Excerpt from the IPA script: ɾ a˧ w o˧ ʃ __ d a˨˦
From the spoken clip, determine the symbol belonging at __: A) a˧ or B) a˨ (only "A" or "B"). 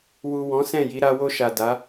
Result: B